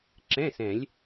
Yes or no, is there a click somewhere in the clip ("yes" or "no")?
yes